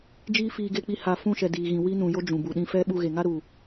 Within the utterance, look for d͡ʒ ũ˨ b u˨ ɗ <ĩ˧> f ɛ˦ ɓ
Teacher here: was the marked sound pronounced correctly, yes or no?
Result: yes